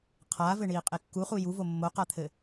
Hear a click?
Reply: no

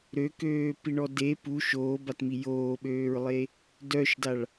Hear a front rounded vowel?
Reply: yes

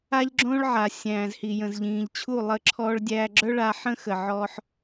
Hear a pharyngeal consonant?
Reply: yes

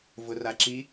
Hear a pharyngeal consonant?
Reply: no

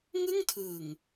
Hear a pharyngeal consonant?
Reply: no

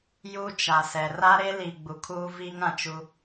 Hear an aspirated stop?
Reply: yes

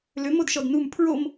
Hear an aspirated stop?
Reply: yes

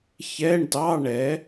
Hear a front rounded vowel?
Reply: no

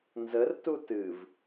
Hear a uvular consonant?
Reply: no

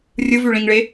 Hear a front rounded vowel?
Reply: yes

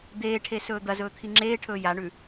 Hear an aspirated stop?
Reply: yes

